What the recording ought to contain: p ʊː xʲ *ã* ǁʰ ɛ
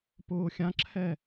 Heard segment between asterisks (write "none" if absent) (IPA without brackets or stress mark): ã